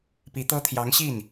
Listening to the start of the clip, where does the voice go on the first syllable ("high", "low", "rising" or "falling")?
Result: rising